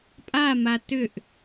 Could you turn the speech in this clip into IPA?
pʼ a m a t ʏ ʔ

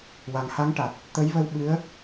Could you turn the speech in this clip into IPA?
w a˨˩ ŋ h a˧˥ ŋ ʈ a˨˩ t̚ | t̪ ə˧˥ j v ə˧ w ɓ ɨ˧˥ ə̯

